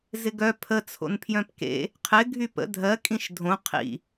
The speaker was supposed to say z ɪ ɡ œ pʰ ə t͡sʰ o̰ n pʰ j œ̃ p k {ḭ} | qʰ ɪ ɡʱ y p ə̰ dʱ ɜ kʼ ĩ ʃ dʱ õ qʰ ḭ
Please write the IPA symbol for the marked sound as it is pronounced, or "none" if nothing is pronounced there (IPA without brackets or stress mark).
ḛ